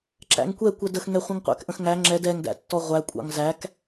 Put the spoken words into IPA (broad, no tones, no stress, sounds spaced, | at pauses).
ǁ æ̰ ŋ kʷ ɛ kʷ ɛ d ə x ŋ ɛ χʷ ə̃ ŋ qʷ æ̰ k ʔ ə̃ x ŋ æ ŋ͡ǁ ɛ d ɛ ŋ d æ̰ tː ɔ ʁʷ æ kʷʼ ɑ̰ ŋ z æ k